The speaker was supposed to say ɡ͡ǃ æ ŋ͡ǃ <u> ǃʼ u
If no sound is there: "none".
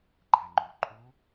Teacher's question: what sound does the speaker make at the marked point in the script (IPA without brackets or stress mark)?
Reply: u